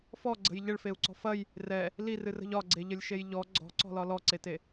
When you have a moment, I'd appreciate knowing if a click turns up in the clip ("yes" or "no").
yes